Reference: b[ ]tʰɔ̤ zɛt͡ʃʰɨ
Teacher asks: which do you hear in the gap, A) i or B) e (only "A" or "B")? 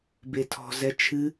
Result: B